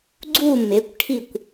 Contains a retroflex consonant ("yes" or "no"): yes